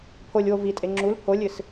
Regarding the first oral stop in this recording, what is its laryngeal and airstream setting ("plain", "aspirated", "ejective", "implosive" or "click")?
aspirated